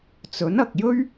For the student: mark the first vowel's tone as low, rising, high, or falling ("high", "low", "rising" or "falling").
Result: rising